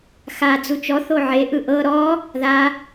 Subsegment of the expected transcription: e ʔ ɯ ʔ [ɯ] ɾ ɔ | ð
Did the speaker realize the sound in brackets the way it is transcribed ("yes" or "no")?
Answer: no